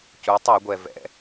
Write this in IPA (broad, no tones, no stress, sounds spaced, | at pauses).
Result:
c u tˤ œ ɡʷ ɛ v ɛ̰